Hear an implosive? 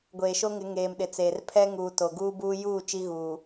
yes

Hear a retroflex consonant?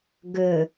no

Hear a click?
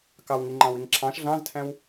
yes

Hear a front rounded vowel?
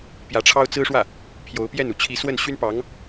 yes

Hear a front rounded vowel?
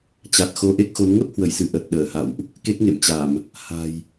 no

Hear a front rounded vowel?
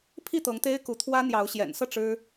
no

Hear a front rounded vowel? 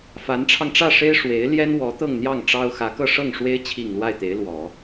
no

